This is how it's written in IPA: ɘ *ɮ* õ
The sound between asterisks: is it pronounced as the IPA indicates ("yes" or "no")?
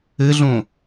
yes